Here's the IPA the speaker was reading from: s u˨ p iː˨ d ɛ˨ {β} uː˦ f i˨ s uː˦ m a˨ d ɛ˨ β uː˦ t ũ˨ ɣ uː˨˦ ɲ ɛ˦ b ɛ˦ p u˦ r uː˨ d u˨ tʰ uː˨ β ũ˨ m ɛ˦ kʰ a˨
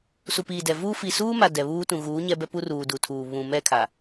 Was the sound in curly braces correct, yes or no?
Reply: no